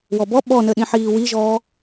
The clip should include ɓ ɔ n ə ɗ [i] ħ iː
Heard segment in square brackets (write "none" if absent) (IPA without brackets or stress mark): ĩ